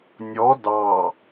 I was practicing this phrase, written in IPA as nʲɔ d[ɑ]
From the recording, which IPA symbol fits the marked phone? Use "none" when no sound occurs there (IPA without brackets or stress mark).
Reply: ɑ